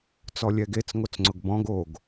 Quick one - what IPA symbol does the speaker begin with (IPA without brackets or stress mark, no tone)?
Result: t͡s